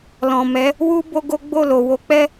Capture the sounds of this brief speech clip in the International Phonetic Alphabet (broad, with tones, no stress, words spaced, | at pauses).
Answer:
lɔ̃˨mɛ˨˦ | wu˦ bo˦ɡo˦ ɡ͡bo˦˨lo˨ wo˨˦k͡pɛ˦